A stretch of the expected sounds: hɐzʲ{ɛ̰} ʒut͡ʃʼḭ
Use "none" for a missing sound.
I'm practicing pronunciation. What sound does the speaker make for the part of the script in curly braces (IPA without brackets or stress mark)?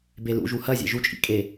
ɛ̰